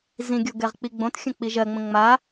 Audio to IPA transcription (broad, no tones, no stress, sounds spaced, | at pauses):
z ĩ ɡʲ o ɡ ɛ ʁ k͡p i ɡ͡b õ t xʲ ə̃ k͡p i ʒ ɜ ŋ͡m ə̃ ŋ͡m a